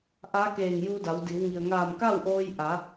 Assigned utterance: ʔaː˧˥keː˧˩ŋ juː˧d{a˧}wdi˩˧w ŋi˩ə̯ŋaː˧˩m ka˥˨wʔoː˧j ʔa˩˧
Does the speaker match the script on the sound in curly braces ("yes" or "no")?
no